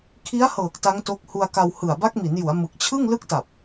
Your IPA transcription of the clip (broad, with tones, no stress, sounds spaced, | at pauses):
kʰ i˦˥ a̯ h ɤː˨˩ k̚ t a˦˥ ŋ t o˦˥ k̚ h u˧ a̯ k a˧ w h ɯ˨˩ a̯ b a˦˥ k̚ m i˩˦ n j u˩˦ a̯ m ɯ˨˩ k̚ t͡ɕʰ ɯ˥˩ ŋ l ɯ˦˥ k̚ t a˨˩ p̚